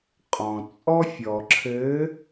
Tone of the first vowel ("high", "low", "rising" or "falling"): low